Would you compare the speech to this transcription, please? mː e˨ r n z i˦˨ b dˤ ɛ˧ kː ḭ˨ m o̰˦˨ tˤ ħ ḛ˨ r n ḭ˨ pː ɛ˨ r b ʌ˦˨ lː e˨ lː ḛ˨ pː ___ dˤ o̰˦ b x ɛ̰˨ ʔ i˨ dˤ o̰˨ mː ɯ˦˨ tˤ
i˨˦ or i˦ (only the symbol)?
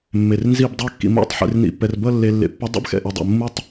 i˨˦